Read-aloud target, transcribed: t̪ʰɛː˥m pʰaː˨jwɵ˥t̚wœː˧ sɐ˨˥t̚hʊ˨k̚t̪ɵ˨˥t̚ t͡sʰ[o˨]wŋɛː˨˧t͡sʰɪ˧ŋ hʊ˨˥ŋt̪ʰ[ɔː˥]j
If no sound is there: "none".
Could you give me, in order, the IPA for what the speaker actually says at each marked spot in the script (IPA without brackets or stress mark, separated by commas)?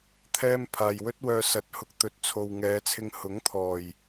o˨, ɔː˨˩